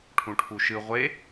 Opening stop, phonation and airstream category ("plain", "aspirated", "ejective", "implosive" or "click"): aspirated